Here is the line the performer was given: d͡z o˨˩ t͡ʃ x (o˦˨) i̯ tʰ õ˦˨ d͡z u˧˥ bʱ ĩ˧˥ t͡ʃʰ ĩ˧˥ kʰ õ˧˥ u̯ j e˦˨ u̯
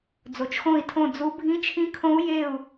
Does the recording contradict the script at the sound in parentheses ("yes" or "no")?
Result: yes